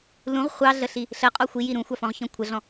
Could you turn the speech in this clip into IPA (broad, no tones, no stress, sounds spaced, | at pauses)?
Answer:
l ũ ʁ χʷ ɑ ɮ ə ɬ i | ɬ ə qʼ ɔ xʷ i j i ɾ ũ xʷ ɑ f ɔ̃ ʁ ç ɔ̃ kʷʰ ə ɮ ɔ̃